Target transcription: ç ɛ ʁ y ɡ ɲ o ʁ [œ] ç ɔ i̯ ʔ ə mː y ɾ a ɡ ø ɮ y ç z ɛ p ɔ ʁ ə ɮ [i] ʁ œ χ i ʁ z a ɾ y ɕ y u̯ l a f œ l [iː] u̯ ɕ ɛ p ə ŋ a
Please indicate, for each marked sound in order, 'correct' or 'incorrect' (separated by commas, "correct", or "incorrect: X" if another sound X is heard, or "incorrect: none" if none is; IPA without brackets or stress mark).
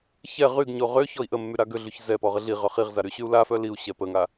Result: incorrect: ø, correct, incorrect: i